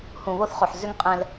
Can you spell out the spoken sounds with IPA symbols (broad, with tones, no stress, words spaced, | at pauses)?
hũ˨βo˦θχo˨ħ zʏ˦ŋ qʼɛ̃˦l